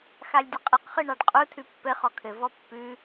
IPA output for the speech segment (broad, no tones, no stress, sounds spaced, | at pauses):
x a lʲ dʲ ə qʼ ɘ q χ ɯ ɳ ɑ ɖ qʼ u tʰ ʉ pː ɘ χ ɔ kʰ ɘ v ɔ pː ʉ